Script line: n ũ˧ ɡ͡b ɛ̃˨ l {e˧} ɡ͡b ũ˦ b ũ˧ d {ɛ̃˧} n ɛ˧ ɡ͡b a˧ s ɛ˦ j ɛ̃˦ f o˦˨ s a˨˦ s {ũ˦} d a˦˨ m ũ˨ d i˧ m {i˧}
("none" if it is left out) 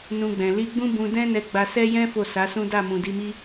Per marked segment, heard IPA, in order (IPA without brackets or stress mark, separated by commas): i˧, ɛ̃˦, ũ˦, i˦